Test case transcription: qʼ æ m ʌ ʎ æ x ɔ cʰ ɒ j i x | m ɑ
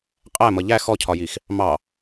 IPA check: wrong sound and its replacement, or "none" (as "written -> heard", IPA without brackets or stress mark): none